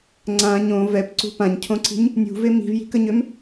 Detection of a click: present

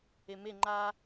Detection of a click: present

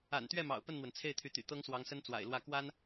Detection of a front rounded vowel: present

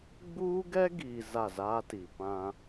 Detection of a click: absent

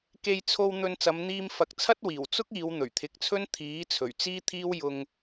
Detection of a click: absent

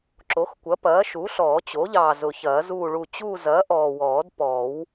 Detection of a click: present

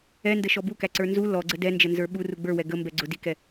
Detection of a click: present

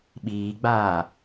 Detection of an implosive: present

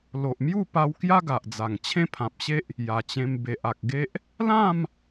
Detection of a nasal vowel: present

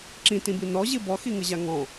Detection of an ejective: absent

